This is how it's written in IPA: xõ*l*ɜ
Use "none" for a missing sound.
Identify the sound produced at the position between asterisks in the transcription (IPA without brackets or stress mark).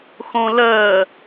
l